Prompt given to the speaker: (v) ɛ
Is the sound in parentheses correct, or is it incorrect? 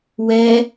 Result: incorrect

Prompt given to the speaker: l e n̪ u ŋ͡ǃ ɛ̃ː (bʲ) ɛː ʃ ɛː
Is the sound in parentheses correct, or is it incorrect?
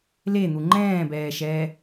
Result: incorrect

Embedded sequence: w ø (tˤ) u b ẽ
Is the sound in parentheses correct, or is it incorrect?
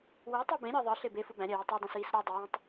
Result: correct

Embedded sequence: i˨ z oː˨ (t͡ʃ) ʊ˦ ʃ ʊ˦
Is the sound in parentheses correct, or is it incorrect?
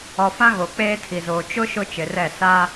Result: correct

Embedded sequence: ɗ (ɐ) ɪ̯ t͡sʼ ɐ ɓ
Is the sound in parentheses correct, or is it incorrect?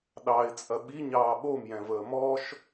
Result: incorrect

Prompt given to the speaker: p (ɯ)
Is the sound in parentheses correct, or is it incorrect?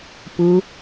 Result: correct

